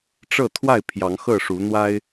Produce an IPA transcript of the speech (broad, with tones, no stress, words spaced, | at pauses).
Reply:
ʈ͡ʂɤ˥˨t̪ʰwa˥˨ɪ̯ pʰjɑ˨˦ŋxɤ˥˨ʂu˨˦ n̪wa˦ɪ̯